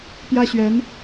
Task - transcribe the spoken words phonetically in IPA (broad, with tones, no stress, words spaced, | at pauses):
pjä˥ɕɥɛ˧˥n